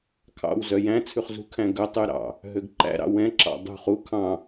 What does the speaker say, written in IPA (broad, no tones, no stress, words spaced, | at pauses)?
kʰɑ̰wzœ jæ̃t͡sʰʉχ zṳ kʰæ̃ɡœtˤy ɾɑ̰ | ɦøɡǃæ̰ɾɑ̰ wɛ̃ǁɑ̰ dˤṳχ u kʰɑ̃